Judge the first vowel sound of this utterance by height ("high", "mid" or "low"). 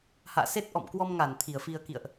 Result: low